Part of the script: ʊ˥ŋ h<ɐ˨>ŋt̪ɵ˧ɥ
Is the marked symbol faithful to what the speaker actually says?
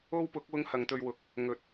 no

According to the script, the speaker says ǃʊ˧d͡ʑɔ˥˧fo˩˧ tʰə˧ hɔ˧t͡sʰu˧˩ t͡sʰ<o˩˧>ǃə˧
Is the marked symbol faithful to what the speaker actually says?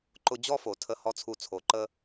yes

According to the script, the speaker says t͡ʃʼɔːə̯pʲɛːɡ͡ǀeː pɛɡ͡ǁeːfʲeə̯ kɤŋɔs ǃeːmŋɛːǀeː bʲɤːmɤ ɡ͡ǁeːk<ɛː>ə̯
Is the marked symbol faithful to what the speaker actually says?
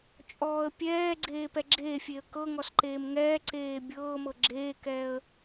yes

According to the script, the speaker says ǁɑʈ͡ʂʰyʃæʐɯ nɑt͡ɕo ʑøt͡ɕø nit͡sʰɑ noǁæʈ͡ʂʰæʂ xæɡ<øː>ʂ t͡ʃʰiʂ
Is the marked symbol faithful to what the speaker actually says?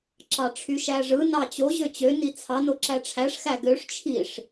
no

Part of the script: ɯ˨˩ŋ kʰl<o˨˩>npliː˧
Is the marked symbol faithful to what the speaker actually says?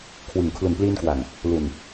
no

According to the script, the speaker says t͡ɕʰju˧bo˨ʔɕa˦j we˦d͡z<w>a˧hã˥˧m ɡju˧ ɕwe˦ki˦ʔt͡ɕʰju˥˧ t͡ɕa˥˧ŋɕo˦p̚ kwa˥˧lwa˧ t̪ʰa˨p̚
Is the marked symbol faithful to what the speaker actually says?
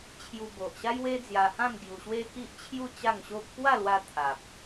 no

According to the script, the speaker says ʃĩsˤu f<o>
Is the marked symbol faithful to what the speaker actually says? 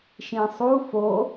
yes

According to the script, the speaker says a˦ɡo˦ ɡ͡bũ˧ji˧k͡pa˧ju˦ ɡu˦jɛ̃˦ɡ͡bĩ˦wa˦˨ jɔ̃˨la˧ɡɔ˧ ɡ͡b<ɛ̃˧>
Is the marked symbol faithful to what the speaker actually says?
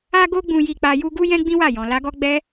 no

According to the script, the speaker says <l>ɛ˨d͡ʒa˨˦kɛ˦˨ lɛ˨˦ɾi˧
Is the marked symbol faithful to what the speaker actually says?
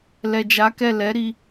yes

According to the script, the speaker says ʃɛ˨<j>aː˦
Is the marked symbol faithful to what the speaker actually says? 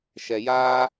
yes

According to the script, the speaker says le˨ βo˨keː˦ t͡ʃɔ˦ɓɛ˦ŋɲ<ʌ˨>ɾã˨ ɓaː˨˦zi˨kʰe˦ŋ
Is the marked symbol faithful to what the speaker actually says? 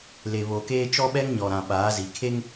no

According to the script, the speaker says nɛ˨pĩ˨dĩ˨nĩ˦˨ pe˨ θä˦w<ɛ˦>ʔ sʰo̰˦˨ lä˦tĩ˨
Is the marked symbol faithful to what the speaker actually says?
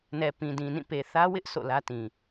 no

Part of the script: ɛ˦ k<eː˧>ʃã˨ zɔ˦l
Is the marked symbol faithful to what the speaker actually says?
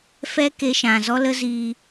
no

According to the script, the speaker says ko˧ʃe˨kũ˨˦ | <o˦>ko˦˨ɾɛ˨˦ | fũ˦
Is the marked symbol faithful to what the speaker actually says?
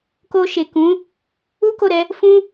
no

